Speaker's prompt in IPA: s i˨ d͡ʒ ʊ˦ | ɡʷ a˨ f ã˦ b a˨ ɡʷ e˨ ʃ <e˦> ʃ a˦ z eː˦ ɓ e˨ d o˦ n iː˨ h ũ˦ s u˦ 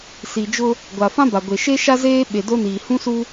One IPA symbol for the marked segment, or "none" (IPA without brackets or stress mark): e˦